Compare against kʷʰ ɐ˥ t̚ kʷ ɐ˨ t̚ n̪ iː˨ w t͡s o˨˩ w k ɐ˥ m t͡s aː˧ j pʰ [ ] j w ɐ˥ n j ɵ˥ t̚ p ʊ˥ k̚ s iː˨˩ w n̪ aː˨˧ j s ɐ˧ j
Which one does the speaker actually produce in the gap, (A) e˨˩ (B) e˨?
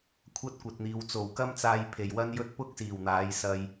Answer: A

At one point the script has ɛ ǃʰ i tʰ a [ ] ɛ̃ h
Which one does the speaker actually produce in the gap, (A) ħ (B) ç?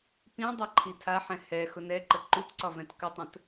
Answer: A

